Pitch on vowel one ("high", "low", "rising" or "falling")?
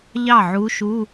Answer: falling